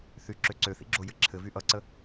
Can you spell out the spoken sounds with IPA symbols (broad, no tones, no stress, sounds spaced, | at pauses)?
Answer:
θ y ǁ ø ǀ ø θ ḭ ɡ͡ǁ o j ɘ ǁʰ ɘ v y ʔ ʌ ǀ ə